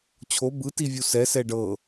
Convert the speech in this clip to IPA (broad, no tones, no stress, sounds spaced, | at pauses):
t͡ɕʰ o b ɯ t i vʲ u s ɛ s ɛ ɖ ɤ